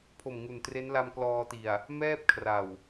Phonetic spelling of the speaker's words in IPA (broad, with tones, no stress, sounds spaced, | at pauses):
pʰ o˨˩ m ŋ u˨˩ n t r e˦˥ n l a˧ m k l ɔː˧ t i˨˩ a̯ | m ɛː˥˩ p̚ kʰ r a˨˩ w